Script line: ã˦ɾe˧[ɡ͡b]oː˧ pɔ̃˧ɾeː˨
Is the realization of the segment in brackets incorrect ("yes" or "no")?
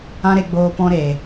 no